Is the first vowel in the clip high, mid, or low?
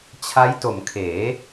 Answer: low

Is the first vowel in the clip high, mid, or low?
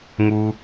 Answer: high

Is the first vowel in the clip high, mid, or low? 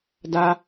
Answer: low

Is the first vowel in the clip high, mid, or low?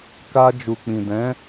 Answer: low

